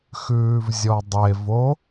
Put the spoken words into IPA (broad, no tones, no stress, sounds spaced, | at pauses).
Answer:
x ʉː v zʲ ɔ dˤ e v o